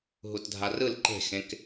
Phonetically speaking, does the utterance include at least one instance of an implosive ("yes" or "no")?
no